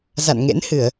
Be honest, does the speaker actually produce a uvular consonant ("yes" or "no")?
no